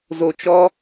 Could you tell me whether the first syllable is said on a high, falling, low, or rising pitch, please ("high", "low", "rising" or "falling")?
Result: low